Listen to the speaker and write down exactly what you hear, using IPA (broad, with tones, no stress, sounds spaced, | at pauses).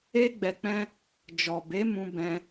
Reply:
e˦ ɡ͡b ɛ˧ k͡p ɛ̃˦ | d͡ʒ ɔ˨ b e˨˦ m ũ˧ b ɛ̃˧